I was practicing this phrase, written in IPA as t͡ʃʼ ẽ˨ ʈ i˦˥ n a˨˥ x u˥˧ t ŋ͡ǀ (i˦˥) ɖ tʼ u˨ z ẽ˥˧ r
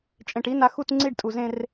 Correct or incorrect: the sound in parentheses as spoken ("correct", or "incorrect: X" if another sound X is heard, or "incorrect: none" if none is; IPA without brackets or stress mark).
incorrect: i˥˧